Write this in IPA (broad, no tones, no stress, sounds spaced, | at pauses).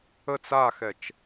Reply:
ə t͡s a x ɛ t͡ʃ